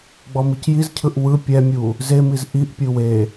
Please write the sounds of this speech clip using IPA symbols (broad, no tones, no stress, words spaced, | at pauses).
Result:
ɡ͡bɔmicjizcʰɯʔ wɯ pʲɛmʲu | zemiz ʔiʔpʲɯ we